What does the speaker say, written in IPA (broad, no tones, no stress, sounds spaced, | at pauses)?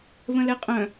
β ə̃ l ɛ qʼ œ̃